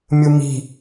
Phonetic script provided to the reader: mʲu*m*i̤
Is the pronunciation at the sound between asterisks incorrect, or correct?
correct